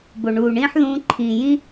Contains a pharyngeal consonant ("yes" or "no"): yes